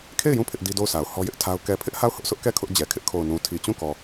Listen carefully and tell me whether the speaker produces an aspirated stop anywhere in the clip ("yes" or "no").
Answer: yes